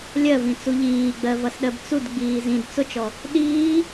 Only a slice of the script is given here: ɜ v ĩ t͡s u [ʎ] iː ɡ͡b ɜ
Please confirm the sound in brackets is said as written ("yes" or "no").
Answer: yes